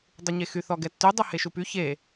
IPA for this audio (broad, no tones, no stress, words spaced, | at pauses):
dˤuɲexy θɔɡɛtːy dˤuheʃupy çe